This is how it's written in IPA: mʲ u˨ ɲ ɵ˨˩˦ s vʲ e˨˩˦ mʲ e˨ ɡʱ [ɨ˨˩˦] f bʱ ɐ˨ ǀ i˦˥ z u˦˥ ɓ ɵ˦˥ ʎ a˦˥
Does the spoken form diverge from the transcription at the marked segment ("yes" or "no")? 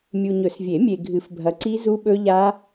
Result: no